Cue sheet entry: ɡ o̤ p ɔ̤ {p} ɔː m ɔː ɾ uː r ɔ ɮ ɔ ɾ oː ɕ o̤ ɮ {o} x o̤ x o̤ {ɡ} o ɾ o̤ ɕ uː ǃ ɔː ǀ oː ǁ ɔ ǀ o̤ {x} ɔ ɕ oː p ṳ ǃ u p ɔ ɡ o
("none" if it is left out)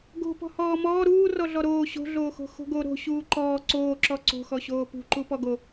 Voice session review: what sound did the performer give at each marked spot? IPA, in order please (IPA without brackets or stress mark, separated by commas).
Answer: h, oː, ɡ, x